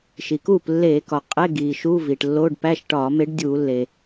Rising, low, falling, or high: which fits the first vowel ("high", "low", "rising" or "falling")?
low